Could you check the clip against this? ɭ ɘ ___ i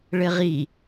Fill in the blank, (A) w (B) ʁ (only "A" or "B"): B